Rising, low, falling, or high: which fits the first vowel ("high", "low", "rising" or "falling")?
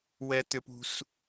high